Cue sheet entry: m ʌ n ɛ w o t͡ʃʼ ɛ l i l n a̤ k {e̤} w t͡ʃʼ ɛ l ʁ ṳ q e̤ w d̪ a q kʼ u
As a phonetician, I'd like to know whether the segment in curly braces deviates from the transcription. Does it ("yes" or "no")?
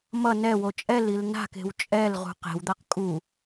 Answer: no